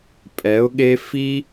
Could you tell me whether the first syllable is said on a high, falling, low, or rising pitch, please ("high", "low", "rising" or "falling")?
rising